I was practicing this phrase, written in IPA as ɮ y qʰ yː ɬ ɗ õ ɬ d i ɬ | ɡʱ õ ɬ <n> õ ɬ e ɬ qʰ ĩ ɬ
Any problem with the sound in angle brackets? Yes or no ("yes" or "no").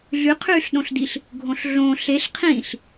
yes